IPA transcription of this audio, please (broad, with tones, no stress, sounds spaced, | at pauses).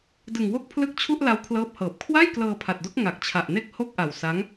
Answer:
d ɯ˨˩ ŋ w o˥˩ k̚ pʰ l ɯ˦˥ k̚ t͡ɕʰ u˥˩ ʔ l a˦˥ w kʰ l ɤː˦˥ p̚ h ɤː˨˩ p̚ kʰ w a˥˩ j k l ɤː˧ pʰ a˨˩ t̚ d o˦˥ k̚ ŋ a˨˩ k̚ t͡ɕʰ a˨˩ ʔ n e˥˩ k̚ h o˥˩ k̚ ʔ a˨˩ w s a˦˥ ŋ